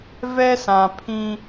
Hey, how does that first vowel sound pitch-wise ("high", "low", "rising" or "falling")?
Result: high